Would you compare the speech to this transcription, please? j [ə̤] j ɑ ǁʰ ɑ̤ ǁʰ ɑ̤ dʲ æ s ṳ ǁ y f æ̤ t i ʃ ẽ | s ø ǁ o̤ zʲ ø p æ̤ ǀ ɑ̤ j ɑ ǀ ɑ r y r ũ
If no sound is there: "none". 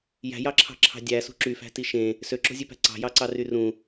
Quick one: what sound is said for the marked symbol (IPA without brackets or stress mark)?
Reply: æ̤